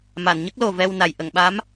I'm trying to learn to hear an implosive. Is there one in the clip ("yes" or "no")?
yes